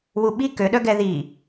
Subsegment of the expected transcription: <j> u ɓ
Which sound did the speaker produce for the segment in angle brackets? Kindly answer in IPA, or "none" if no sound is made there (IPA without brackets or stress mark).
w